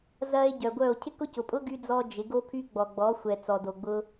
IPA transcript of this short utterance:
zɐ˧e̯ ɟœ˨ɡʷœ˦˨o̯ cʰɪ˦kʊ˦cʊ˨pʼʊ˦ ɡy˧d͡zɔ˧ d͡ʒɪ˨˦ɡo˦pʰy˦ ɡ͡bɔ˨ɡ͡bɔ˨˦xʷɛ˨ t͡sɔ˨do˨ɡ͡bʊ˧

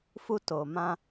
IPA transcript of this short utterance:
fu˧to˨mã˧

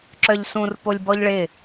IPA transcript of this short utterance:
ǁœʎsũr polʲbɔʎɭɪ

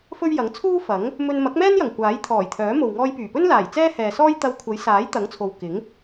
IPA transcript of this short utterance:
fɵ˥ɥjɐ˨˥ŋ t͡sʰuː˥fɐ˨˥ŋ | mɵ˧nmɐ˨˥k̚mɛː˥njɐ˨˩ŋ kʷaː˨˥jt̪ʰɔː˨˩jt̪ʰœː˨˥ mo˨wŋɔː˧jpyː˨˩pɵ˥n laː˨˩jt͡sɛː˥hɛː˨sɔː˥j t̪ɐ˧wkʷʰɐ˨˥j saː˨˥jt̪ɐ˨˥ŋt͡sʰo˨w kɪ˨˥ŋ

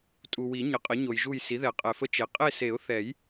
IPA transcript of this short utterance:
tʼu˨wi˨˩˦ ɲə˩˥qʼə˩˥ɲo˨jʒu˦˨j si˩˥ðɛ˨˩˦qʼɛ˨fə˦˥ t͡ʃe˩˥ qʼe˦˨se˨˩˦ʊ̯θɛ˨˩˦j

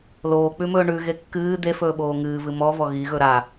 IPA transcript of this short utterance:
loː k͡pʉmɵːɳʉɣe kːɨː d̪efɵː ɓoːŋɨːvɨ mɔvɔ ɣiɣɵ ɾa

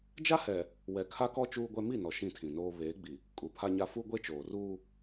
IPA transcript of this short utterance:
d͡ʒa˦hɛ˨ | wɛ˨kʰa˦kɔ˦ t͡ʃuː˦ɡʷɛ˦ mi˦˨ nɔ˨ ʃĩ˦˨tʰĩ˨noː˦ βeː˨˦ɡ͡bi˨ | kʼu˨pʰa˦ɲa˦ fu˦ ɡʷe˦t͡ʃoː˨ruː˦

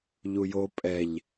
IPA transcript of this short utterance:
ʎujo pʼɛʎ

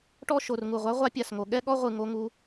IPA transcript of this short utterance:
ʈɔ˥˧ʃo˨˩rŋu˨˩ʁʷa˦˥ ʁʷa˦˥pʲa˨˩sŋo˨˩ ɠɛ˥˧ɠɔ˥˧ʁʷɯ˨˩ ŋo˦˥ŋu˦˥

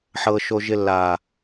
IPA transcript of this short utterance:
ħɤː˧ ʃo˧ʒɪ˧ lːaː˨

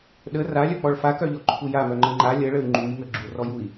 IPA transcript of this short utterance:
ɗə ralʲœk͡pɔɭ fakœʎɔǃʰu jamœŋ͡ǃə ŋ͡ǃa lʲəɭəy̯ ŋ͡ǃujŋə ɡ͡ǁurɔjui̯

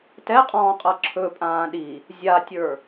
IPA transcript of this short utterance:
tɛqʼɔ̃ːqʼɤ ǁʰɵpʼãː ɗi | zʲatʲə˞

